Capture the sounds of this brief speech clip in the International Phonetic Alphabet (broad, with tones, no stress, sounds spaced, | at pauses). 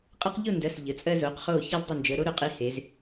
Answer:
qʼ ɛ˦ q ʎ ʊ˥˨ n d ɜ˩˧˩ s ʎ ə˩˧ t͡sʼ ɜ˦ z o˩˧ q χ o˧˩ ç a˦ z dˤ ə˧˩ n d͡ʒ ə˩˧ ɾ o˨˥ ɾ ʊ˩˧ qʼ i˨˥ h e˩˧ z